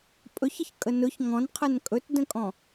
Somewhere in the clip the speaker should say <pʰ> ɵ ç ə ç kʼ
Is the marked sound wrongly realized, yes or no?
yes